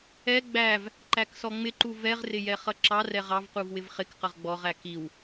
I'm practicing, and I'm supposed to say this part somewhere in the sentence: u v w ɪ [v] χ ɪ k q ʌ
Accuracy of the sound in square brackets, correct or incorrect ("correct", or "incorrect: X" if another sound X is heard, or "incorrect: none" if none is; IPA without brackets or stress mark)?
correct